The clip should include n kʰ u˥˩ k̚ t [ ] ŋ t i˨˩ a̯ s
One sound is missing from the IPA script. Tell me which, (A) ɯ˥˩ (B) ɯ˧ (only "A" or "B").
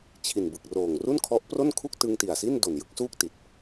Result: B